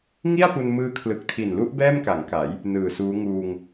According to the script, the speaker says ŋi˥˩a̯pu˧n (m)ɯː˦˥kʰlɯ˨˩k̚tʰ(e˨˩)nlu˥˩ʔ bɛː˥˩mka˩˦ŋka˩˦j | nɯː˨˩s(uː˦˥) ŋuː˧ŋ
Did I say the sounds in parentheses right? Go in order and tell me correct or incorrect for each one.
correct, incorrect, correct

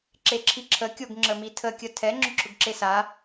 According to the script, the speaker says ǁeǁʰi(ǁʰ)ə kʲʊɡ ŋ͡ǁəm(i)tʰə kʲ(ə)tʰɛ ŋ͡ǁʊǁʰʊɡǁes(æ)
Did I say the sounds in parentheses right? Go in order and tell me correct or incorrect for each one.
correct, correct, correct, incorrect

